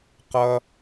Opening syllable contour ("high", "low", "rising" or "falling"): low